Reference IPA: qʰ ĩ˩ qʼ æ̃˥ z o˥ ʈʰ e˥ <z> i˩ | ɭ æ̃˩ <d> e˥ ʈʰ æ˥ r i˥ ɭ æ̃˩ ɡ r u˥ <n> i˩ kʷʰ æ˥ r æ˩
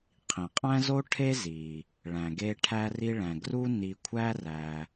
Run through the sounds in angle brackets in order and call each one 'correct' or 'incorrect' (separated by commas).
correct, incorrect, correct